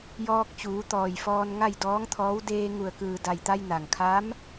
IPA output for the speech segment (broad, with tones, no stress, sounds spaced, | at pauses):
j ɔː˧ k̚ t͡ɕ uː˩˧ t̪ ɔː˩ j f ɔː˧ n ŋ a˥˨ j d ɔː˧˥ ŋ t̪ʰ ɔː˧˥ w d eː˧ ŋ u˩ ə̯ k ɯː˩ d a˩ j t̪ a˧ j n a˩ ŋ kʰ a˧˥ m